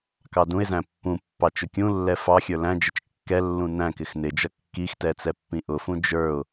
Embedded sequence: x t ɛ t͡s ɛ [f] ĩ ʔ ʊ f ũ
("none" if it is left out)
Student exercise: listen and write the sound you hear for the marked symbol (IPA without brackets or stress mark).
pː